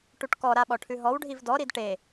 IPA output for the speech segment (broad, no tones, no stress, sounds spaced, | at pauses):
ʈ u ʈ k ɔ ɾ a ɓ ɔ ʈʰ ʉ ɦ ɔ w ɖʱ i v d ɔ ɾ i d ʈ e